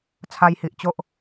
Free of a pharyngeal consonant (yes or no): yes